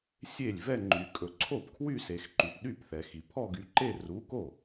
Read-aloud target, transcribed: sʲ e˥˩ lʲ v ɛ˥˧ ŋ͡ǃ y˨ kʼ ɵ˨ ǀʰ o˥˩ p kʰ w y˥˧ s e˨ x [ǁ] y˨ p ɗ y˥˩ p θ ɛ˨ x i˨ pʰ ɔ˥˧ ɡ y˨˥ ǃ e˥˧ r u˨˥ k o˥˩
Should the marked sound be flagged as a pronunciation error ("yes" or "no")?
yes